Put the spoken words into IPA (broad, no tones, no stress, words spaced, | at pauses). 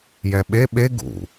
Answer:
jɛɓe ɓe ɡṵ